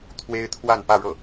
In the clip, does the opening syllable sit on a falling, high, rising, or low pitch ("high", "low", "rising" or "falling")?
high